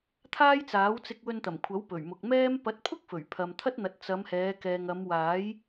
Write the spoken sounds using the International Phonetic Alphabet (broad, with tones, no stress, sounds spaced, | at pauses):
t̪ʰ aː˥ j t͡s aː˨˥ w t͡s ɪ˧ k̚ w ɵ˧ n t̪ ɐ˨˩ m kʷʰ ɐ˨˥ w p ɵ˨˩ ɥ m ʊ˨ k̚ m ɛː˥ m p ɐ˨˥ t̚ pʰ ʊ˥ k̚ f ɵ˨˩ ɥ pʰ ɐ˨ m t̪ʰ ɐ˥ t̚ n̪ ɐ˨˥ t̚ t͡s ɐ˨˧ m h ɛː˨˧ k ɛː˨ ŋ ɐ˨˧ m w aː˨˥ j